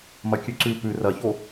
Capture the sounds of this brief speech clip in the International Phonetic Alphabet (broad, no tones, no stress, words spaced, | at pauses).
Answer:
mɐkʲʉǀʉ pʉ rɐço